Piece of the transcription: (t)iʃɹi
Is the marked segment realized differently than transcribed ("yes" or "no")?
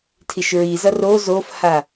yes